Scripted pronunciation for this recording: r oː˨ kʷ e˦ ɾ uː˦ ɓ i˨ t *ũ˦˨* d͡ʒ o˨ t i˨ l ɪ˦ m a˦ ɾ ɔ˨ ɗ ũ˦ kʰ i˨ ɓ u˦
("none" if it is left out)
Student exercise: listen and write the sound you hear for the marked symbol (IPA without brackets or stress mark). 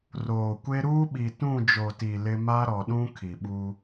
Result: ũ˦˨